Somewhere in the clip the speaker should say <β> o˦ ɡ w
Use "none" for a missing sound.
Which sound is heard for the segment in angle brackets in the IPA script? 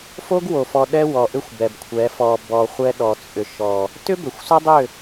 f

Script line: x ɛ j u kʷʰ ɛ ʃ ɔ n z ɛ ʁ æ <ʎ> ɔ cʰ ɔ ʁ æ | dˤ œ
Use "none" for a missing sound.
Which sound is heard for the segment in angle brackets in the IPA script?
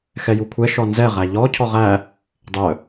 ʎ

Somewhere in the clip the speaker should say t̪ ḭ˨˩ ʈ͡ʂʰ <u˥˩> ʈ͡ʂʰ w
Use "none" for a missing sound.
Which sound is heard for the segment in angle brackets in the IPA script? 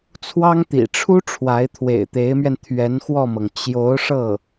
u˥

